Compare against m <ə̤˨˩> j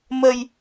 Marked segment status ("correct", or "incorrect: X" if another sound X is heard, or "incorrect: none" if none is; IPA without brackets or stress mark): incorrect: ə˧